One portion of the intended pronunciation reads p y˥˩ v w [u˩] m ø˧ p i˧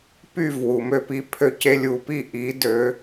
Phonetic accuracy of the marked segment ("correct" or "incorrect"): correct